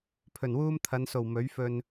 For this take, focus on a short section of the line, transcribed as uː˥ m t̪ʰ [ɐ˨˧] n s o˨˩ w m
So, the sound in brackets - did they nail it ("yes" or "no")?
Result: yes